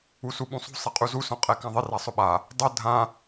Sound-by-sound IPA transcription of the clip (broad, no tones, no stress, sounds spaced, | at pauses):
u s u ɓ ũ sˤ ṳ sˤ ɛ qʼ u z u s ɔ̃ qʼ ɛ k ã ðˤ ɪ r a sˤ ʊ ɓ a | dˤ ʊ dʱ ã